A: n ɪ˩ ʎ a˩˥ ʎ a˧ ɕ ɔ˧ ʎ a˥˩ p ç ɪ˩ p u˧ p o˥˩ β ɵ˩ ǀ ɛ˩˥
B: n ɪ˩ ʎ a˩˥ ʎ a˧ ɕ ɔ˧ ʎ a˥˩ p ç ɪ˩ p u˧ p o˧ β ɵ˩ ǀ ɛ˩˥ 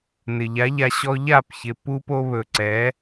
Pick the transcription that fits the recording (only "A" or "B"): B